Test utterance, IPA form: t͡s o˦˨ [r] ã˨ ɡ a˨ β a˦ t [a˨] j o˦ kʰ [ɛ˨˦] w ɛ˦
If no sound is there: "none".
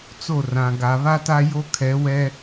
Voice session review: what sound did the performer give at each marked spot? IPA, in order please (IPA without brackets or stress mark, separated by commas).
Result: r, a˦, ɛ˨˦